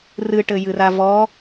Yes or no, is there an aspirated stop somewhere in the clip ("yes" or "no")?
no